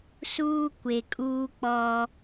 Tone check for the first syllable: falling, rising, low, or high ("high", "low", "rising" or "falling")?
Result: high